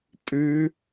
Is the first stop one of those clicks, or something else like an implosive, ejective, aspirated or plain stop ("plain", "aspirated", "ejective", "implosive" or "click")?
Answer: ejective